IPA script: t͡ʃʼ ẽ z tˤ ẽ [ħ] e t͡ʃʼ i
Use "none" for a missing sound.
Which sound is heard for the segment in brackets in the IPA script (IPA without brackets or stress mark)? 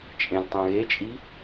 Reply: ɣ